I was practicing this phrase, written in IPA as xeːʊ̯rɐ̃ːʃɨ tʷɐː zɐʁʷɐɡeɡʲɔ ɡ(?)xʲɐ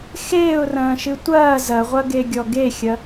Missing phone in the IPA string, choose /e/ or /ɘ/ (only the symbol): e